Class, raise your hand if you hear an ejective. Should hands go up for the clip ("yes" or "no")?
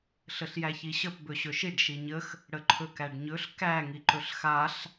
no